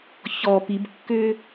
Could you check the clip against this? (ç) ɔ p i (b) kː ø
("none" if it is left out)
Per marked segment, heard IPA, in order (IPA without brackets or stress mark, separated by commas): ç, b